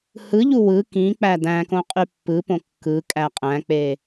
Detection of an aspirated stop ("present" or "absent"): absent